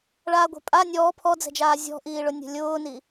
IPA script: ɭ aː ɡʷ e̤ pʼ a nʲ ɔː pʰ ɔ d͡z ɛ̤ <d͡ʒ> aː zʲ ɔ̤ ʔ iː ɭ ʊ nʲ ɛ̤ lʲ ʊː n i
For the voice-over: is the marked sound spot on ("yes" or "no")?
yes